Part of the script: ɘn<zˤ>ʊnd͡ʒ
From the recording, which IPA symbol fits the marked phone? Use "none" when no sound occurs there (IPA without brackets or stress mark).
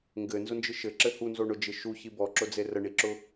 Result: z